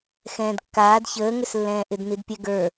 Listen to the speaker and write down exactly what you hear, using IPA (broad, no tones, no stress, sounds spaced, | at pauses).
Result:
x ɛ̃ː d kː aː d ç əː ŋ ʏ s lː ɛ̃ː ʔ ɪ d n i d pʲ ɛ ɡ ə˞